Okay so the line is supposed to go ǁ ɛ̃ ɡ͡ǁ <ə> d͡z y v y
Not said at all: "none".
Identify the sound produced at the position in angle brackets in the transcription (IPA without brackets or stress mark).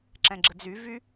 ə